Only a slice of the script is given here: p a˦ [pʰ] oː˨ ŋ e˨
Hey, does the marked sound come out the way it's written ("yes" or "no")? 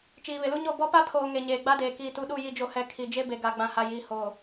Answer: yes